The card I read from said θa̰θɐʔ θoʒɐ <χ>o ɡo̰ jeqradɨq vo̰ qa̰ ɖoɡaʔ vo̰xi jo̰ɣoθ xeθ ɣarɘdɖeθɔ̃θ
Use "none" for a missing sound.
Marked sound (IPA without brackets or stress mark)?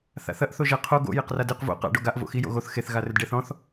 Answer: qʰ